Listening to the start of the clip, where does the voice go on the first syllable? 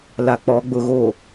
low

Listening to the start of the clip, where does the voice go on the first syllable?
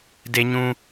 low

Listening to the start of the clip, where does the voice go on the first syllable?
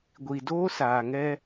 low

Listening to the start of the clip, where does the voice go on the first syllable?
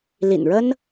low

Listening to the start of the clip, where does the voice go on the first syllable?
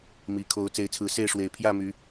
low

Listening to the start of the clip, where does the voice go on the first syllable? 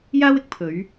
high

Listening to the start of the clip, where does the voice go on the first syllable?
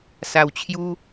low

